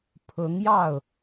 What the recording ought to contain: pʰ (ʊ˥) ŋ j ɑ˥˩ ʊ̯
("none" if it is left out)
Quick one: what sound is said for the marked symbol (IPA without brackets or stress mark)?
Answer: ʊ˧˥